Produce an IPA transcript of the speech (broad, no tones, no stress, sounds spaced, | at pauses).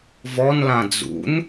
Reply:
v ɔ n l ã d͡z ṵ n